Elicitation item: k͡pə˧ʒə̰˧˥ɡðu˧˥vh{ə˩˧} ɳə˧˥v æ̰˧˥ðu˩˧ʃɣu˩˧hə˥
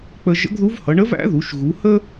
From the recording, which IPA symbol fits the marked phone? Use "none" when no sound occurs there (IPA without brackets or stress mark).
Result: ʌ˩˧